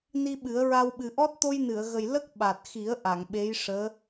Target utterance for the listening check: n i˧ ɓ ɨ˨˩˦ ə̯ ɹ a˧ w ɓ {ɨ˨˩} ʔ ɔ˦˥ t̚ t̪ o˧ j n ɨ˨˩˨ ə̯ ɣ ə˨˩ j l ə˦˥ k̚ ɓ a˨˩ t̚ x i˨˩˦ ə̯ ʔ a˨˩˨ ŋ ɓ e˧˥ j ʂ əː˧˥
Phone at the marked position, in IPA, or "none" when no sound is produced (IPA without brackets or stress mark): ɨ˨˩